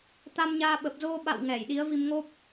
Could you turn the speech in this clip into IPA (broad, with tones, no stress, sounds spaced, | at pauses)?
t̪ a˧ m ɲ aː˧ ɓ ə˨˩ p̚ z o˧ ɓ a̰˧˨ w ŋ ɛ˧˩ j ɗ i˨˦ ə̯ v i˧ m ŋ o˦˥ p̚